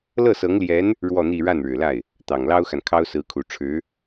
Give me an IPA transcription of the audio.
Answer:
l ɤ˥˩ s ɤ˧˥ ŋ l j ɛ˧˥ n | ɻ w ɔ˥˧ n̪ i˥˧ ɻ a˥˩ n ɻ ɻ̩˨˩ l a˥˩ ɪ̯ | t̪ ɑ˨˩ ŋ l ɑ˥ ʊ̯ x a˨ n kʰ ɑ˥ ʊ̯ s ɹ̩˧˥ kʰ u˨˩ ʈ͡ʂʰ ɻ̩˧˥

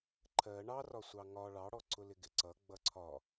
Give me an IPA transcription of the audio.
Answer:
ǃʰ ɜ ɳ ɑ r ɒ sʷ ɑ ŋ ɒ ɭ ɑ ɽ ɔ ǀ ʊ l ɪ ɡ ɪ ǀ ʌ ɡ͡b ʌ ǀʰ ɒ

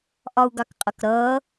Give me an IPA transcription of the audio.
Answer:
ʔ ɒ u̯ ɡ ɑ k qʼ ʌ k ɾ ʌː

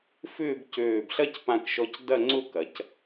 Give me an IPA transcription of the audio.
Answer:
f ʏː˥˧ b c øː˧˩ b ɬ ɐ˥ c p ã˧ k ʃ ɔ˧ c d ɐ˥˧ ŋ͡ǀ ʊ˥˧ k ɐ˩˧ c

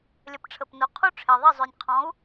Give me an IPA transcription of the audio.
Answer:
lʲ ə˩˥ p ʈ͡ʂʰ ə˩ p n o˩ qʰ u˥ ʈ͡ʂʰ e˩ ðˤ i˥˩ zˤ ø˩ nʲ qʰ ɔ̃˩˥ u̯

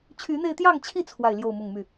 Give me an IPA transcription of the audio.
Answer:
t͡ɕʰ y˨˦ n̪ e˧ ɪ̯ t̪ j ɑ˥˨ ŋ t͡ɕʰ i˥˨ t͡sʰ w a˥˨ ɪ̯ l j o˥˨ ʊ̯ m ʊ˥˨ ŋ m y˥˨

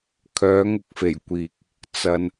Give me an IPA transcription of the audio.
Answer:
kʰ œː˨˧ ŋ ʊ˥ k̚ f e˨˩ j kʷ iː˨ k̚ | t͡s ɐ˨ n

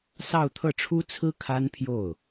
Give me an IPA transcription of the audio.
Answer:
s ɑ˥˧ ʊ̯ t̪ʰ ɤ˥˩ ʈ͡ʂʰ u˥ t͡sʰ ɹ̩˥ kʰ a˥ n pʰ j o˥˩ ʊ̯

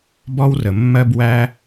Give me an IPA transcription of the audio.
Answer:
b ɔ˥ w r ə˩ mː ɜ˥ b w æ˥

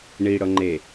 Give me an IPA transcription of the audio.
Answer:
ɳ i ɽ ɤ ŋ͡ǃ e

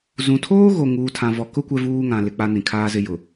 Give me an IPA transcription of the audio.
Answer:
z ũ˨ tʰ oː˦ ɣ o˨ ŋ uː˨ tʰ ã˨ v ɔ˨ k ʊ˦ kʷ ɛ˦ v uː˦ ŋ ã˨ l ɪ˨ k͡p a˦ n ĩ˨ kʰ aː˦ z ɪ˦ j ʊ˨

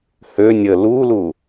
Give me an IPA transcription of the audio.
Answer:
h ø nʲ ə l u l u

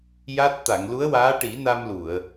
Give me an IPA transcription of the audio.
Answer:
j a˦˥ t̚ t̪ a˨˩˨ ŋ l u˧˥ ə̯ w aː˧˥ ʈ i˨˩˦ n a˧ m l u˨˩˨ ə̯

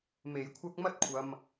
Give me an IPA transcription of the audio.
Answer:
m e˨˧ j kʷʰ ɐ˥ k̚ m ɐ˥ t̚ kʷʰ ɐ˨ m

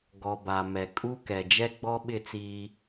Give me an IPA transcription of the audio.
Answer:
ɡ ɔ˨ b a˨ m ɛ˨ kʼ u˦ k ɛ˨ d͡ʒ ɛ˦ ɡ͡b ɔ˦ ɓ ɪ˦˨ t͡s iː˦

